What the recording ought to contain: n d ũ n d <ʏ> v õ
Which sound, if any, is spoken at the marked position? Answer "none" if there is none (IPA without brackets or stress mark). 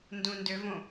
ʏ